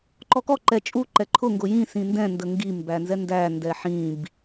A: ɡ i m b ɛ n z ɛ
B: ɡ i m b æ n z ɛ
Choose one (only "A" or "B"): B